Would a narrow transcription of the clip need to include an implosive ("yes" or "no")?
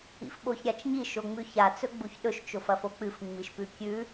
yes